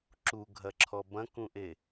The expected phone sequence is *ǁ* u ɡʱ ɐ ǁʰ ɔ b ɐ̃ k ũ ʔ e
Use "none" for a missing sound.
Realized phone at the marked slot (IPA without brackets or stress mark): ǁ